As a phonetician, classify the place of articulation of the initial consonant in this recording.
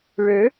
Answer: retroflex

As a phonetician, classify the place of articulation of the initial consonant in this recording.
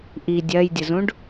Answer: glottal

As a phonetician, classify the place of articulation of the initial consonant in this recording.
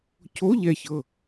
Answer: palatal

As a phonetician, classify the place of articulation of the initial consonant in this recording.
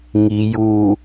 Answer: velar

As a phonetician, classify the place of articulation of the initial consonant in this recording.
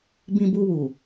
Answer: labial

